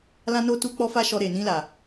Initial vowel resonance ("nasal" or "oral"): nasal